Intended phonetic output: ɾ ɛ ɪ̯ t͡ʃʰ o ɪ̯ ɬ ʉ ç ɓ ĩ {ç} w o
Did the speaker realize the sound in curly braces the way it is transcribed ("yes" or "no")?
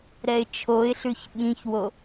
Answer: yes